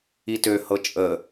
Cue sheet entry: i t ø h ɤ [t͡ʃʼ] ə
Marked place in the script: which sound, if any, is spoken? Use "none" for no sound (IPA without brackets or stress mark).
t͡ʃʼ